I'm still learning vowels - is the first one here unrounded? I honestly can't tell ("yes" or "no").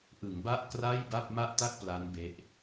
yes